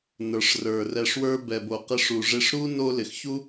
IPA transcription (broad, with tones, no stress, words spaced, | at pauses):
nə˞˩ʂrə˞˩rɛ˨ʂ wə˞˦bɛ˨bo˨ qɪ˦ʂu˨ʐɪ˥ʂ ɾu˥ no˦ lɪ˨xçu˥